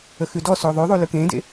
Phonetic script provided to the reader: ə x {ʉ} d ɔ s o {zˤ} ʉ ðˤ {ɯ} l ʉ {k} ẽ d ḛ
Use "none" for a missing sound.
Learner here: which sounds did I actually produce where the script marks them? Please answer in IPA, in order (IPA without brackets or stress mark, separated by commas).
ʉ, ðˤ, u, k